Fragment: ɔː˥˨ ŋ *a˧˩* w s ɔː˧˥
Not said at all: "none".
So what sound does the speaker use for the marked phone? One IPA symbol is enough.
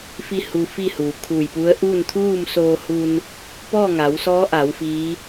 a˩˧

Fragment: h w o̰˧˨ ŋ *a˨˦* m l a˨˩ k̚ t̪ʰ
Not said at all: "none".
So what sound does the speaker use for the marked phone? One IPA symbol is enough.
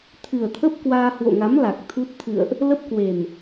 a˨˦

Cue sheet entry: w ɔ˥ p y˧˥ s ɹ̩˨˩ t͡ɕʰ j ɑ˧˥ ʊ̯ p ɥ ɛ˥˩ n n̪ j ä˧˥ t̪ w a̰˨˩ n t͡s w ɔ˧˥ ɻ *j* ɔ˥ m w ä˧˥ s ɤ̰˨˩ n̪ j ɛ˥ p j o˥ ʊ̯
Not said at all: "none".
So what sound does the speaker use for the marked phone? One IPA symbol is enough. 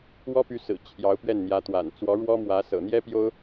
w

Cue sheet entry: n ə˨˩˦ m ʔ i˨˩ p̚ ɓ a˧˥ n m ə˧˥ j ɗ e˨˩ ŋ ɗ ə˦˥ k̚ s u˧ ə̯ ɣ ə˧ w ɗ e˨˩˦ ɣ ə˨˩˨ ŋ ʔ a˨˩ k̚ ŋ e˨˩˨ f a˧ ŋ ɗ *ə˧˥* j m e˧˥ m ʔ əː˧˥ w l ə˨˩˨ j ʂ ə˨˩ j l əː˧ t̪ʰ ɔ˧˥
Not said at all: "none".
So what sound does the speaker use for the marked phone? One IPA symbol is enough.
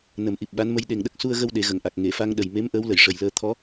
ə˨˩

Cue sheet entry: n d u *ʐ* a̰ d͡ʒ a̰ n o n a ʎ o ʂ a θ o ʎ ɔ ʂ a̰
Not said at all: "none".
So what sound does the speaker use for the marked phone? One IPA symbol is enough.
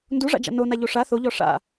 ʐ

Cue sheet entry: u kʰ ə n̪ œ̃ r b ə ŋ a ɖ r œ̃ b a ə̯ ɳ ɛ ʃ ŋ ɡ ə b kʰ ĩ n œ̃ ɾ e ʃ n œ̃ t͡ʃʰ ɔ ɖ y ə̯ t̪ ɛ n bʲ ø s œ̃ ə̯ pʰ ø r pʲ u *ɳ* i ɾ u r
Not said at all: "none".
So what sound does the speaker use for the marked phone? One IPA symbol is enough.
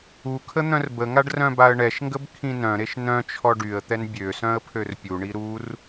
ɳ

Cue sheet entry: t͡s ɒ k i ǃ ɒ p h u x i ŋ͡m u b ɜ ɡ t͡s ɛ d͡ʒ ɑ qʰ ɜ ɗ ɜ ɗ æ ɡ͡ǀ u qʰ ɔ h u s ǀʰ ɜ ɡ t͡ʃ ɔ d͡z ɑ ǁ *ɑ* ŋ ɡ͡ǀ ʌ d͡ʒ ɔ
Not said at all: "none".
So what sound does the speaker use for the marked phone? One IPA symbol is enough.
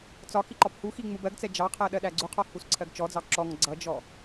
ɔ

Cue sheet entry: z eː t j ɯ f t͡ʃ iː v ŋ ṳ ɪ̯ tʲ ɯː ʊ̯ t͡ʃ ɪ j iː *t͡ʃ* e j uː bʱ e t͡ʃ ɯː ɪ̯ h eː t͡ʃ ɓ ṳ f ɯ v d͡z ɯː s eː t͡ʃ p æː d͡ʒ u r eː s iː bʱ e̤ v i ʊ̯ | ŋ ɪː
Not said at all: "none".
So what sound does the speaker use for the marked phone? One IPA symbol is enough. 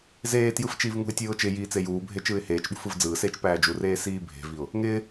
t͡s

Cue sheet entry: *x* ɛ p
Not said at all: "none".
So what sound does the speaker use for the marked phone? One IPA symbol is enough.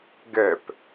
ɡ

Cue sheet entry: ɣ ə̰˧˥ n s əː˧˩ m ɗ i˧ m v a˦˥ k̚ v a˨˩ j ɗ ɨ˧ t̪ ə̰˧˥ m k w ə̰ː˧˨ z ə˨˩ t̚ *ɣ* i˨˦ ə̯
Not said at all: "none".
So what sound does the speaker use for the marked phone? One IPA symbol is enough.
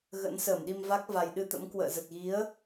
ɣ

